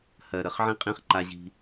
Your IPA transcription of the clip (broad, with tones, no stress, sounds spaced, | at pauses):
h ɜ˨ ɾ ə˨ χ ʕ ĩ˦ qʼ ĩ˦ χ ǃ a˦ ʑ i̤˦